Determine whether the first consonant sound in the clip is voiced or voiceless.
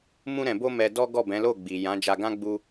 voiced